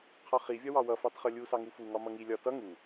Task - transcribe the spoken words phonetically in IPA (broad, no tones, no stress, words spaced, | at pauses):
qʰɒχi vʲɒwɑwʌ fɑtχʌlʲu sɑŋufu ŋɒmʌŋi lʲɒ tʌ ŋu